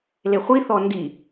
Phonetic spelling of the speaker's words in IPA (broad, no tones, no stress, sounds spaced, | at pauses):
l e χʷ i θ ɔ n d i